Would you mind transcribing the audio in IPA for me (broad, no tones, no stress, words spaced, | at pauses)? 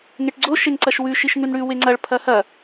ŋeʈɡ͡ǀo ʃeŋǀɐʃwʉ ʃiʃŋʉnɽʉ weŋ͡ǀɐɭ pʰɐhɐ